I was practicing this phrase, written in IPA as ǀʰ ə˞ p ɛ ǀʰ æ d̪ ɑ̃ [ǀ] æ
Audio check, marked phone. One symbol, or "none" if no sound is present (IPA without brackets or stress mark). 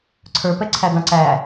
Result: ǀ